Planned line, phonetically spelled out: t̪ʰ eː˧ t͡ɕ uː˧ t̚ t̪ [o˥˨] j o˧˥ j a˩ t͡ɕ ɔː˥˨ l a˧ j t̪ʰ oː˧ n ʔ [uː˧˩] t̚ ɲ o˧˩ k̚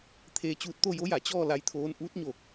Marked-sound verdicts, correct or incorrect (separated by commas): correct, incorrect